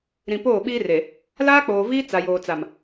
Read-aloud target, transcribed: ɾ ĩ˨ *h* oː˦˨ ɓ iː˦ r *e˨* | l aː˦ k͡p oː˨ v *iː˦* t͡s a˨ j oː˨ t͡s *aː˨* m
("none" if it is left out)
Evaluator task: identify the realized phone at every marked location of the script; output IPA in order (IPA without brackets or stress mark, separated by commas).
p, e˨, iː˦, a˨